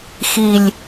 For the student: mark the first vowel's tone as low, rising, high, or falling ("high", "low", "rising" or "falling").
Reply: low